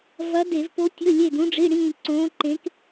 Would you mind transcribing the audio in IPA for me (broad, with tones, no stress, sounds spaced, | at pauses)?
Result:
v ɐ˧˥ d e˧˩˧ v p o˧˥ tʲ ɵ˧˥˧ lʲ e˦˨ d ũ˧˥ ɖ͡ʐ i˧˥˧ ɽ ĩː˦˨ ǀ õː˧˥ ǃ ẽ˧˥ k